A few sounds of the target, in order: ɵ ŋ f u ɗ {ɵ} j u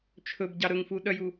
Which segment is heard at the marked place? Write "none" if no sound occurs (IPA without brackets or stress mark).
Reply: œ